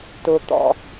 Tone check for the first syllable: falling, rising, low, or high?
low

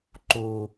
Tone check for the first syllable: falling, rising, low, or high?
low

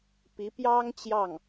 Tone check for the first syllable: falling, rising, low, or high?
rising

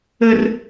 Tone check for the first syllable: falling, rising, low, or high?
high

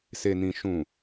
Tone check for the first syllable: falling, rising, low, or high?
low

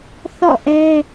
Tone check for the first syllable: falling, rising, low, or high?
falling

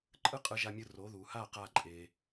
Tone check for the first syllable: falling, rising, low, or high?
high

